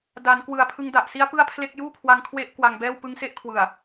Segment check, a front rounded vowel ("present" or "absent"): absent